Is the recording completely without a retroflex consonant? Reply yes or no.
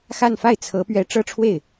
no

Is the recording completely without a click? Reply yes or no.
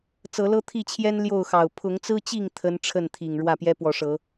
yes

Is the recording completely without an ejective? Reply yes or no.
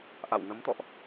yes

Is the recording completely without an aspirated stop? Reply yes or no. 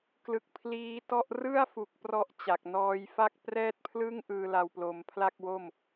no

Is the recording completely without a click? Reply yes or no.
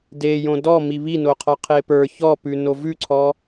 no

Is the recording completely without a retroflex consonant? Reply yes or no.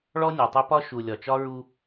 no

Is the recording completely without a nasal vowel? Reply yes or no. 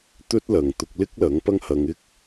yes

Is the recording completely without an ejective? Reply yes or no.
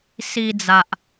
yes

